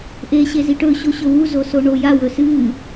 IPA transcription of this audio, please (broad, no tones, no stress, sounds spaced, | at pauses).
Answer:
ʔ e ɕ e z i ʈ ɵ ɕ o ɕ ɵ w u z o s o ɳ o j a w ɵ s ɨ